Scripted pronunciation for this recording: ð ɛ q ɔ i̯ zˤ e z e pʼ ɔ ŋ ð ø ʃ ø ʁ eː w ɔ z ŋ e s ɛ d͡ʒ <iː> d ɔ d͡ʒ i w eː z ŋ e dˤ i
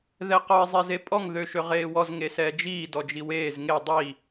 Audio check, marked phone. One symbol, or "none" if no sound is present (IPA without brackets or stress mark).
iː